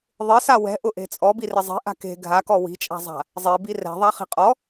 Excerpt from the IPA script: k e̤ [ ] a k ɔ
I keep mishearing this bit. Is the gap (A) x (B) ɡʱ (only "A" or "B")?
B